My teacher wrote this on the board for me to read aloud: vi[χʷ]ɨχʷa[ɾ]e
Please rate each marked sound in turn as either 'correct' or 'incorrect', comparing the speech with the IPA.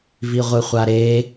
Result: incorrect: ʁʷ, correct

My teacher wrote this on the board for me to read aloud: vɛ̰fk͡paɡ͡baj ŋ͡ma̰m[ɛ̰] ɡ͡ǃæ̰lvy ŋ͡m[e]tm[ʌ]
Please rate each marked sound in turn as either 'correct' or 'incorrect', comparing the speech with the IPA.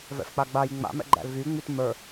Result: correct, incorrect: y, incorrect: ə˞

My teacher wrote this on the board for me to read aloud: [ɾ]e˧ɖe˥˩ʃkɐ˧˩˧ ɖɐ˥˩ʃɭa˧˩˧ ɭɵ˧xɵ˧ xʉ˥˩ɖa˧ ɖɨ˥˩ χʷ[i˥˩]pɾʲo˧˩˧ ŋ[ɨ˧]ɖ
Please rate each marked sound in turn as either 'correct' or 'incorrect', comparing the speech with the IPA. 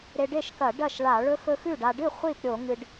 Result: correct, correct, correct

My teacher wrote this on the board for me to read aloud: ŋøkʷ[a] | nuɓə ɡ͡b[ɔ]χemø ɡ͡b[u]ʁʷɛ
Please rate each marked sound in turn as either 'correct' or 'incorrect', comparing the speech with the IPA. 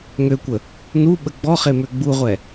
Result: incorrect: ə, correct, correct

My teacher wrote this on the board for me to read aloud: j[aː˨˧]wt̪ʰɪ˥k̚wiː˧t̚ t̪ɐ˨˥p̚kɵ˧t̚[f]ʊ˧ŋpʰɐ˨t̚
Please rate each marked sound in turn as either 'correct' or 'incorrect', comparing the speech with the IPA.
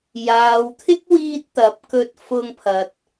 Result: incorrect: aː˨, correct

